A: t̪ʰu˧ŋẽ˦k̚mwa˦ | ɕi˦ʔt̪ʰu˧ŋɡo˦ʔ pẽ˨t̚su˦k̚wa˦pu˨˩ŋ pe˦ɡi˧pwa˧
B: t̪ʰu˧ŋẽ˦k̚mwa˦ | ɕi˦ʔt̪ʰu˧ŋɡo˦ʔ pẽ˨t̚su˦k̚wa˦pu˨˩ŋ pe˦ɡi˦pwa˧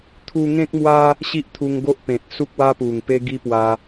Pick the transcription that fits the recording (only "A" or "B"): B